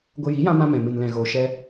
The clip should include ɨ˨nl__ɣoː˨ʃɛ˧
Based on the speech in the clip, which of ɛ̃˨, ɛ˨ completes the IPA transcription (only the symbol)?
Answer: ɛ̃˨